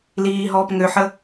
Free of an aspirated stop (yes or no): yes